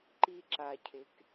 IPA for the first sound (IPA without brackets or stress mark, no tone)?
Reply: ǃ